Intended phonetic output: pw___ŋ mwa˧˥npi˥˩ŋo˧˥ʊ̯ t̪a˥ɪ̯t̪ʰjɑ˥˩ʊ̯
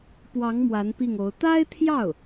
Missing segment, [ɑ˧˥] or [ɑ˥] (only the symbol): ɑ˧˥